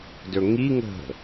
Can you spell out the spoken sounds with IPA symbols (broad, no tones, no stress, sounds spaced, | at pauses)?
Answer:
d ɵ ŋ i ŋ ə̤